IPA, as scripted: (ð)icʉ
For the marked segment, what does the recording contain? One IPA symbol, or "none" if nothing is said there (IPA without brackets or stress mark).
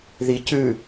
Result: ð